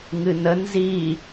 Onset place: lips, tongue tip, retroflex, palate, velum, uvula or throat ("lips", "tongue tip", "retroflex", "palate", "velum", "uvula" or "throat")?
velum